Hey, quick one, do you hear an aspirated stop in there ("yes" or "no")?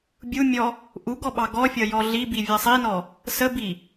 no